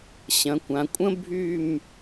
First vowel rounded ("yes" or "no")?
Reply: no